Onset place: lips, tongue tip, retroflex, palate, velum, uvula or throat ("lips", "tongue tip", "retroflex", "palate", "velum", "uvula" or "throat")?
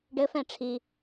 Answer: retroflex